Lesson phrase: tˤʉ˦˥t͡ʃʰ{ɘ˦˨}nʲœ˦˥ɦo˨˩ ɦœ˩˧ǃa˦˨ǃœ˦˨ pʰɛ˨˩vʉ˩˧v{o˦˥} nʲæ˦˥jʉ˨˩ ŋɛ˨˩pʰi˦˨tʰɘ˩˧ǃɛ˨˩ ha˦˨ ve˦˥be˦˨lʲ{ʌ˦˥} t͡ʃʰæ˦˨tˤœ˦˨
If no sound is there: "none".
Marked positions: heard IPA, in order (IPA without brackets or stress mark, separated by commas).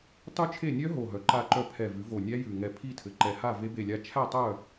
e˦˨, o˨˩, a˦˥